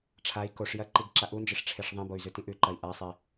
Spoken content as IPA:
ʈ͡ʂʰ a i̯ k o ʂ j ɐ ǃ i ɡ ǁ a ʔ u n d͡ʒ e ʂ ʈ͡ʂʰ e ʂ ðˤ ĩ b o y̯ z ʉ t ĩ ʔ ʉ ǃ ɐ i̯ ʔ a sˤ e

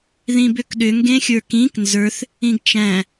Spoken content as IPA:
ð ĩ b ʏ k ɗ ʏ ŋ ɡ ẽ xʲ ə˞ k ĩ k n z ə˞ θ | ĩ ɡ t͡ʃ æ̃

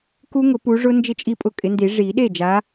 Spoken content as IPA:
k u˦˥ ŋ ʊ˨˩˦ p u˨˦ ʐ ʊ˦˥ n d͡ʒ ɪ˥˩ t͡ʃʼ i˥˩ pʼ ʊ˥˩ kʼ ɪ˨˦ n d i˨˩˦ ʐ i˨˩˦ ɗ e˥˩ d͡ʒ a˨˦

